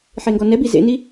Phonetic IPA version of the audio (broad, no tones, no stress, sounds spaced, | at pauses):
ħ e ŋ ɡ ɔ n ɛ b i z ḛ n i